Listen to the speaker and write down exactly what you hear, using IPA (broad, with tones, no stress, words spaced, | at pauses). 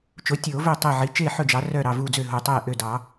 t͡ʃo˩˥tʲoː˨˩˦vɵ˧˩tˤe˧˩ ʕi˩˥t͡ʃe˥˩ħɵ˥˩d͡ʒɑ˩˥ rœ˧˩ ɾɑ˧˩vu˧˩d͡zø˧˩ ɦo˧˩tˤɛː˥˩ʔø˥˩ dɑ˨˩˦